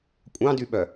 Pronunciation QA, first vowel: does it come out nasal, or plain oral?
nasal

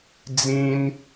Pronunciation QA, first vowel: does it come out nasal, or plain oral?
nasal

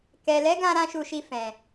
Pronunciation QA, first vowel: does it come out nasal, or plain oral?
oral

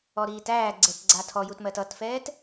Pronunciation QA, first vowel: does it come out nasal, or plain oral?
oral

